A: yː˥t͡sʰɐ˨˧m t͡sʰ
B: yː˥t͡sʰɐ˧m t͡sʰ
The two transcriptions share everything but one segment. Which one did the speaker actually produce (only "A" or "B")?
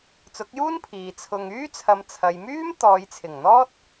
A